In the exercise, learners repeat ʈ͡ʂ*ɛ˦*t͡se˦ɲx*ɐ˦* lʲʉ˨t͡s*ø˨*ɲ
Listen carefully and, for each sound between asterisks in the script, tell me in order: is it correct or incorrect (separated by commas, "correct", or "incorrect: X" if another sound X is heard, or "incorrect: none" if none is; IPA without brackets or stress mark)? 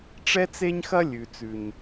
correct, correct, incorrect: ʉ˨